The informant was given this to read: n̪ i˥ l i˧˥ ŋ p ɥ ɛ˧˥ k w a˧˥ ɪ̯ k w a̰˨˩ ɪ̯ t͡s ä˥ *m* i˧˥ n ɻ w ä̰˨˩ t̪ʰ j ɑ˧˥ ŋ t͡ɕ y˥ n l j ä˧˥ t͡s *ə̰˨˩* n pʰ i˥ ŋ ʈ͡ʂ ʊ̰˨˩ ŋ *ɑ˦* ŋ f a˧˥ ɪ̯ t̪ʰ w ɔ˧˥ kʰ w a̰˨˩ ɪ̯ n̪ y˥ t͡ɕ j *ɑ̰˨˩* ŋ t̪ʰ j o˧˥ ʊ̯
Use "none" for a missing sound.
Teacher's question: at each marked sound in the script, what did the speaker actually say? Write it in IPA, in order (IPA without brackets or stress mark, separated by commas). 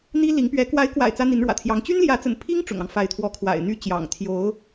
n̪, ə̰˨˩, ɑ˦, ɑ̰˨˩